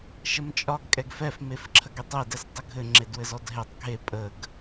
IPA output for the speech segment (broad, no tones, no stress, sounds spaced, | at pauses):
ʃ ə m t͡ʃʼ ɒ ɡ kʼ ɛ ɡ f ɛ f m e f ǁʰ ə ɡ e tˤ e d ɛ s tˤ ə ɡʱ ɘ ŋ͡ǁ e d w ɘ z ɔ d ɦ e tˤ ɡʱ e pʼ ə ɡ